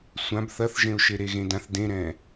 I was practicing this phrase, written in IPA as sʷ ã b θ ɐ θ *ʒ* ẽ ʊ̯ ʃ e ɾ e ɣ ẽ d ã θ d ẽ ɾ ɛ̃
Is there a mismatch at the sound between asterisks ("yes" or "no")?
no